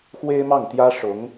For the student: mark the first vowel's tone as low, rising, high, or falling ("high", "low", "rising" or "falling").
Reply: high